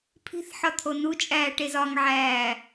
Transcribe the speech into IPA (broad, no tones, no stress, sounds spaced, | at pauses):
pʰ i̤ θ ħ ɒ t̪ʰ o n u t͡ʃʼ æː ʈ e z ɒ ŋ ʕ æː